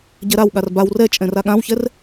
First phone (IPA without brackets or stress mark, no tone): ɟ